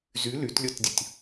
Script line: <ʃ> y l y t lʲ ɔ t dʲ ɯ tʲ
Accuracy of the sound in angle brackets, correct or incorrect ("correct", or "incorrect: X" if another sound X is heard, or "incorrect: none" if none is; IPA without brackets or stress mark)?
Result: incorrect: z